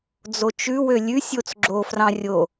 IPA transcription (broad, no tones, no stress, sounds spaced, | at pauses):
d͡z o t͡ʃ ʉ w ø lʲ ʉ sʲ o t͡s ɡ͡ǁ o f r ɑ̃ rʲ o